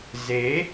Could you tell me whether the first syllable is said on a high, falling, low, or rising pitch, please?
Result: rising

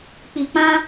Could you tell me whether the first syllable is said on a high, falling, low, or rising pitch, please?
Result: low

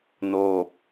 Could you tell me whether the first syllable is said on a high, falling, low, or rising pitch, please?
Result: falling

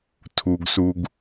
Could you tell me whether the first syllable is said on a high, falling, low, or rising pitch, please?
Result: low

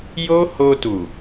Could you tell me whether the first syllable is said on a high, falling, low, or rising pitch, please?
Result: high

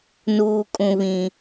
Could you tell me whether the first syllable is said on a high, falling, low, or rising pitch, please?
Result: low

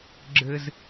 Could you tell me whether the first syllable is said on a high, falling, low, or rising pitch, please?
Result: high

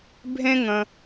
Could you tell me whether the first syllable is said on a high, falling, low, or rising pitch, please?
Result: high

